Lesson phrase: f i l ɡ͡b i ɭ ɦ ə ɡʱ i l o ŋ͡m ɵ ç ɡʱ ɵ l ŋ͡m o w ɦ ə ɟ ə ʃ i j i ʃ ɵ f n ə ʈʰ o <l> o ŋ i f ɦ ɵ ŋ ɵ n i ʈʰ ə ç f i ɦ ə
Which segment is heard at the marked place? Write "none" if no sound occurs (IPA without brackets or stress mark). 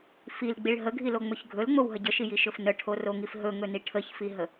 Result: r